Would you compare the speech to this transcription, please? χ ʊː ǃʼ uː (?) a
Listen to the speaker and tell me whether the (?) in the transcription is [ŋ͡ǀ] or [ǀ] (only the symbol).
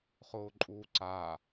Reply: ǀ